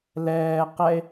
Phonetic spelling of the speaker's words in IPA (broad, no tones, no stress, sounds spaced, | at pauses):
l ɛː q ɛ e̯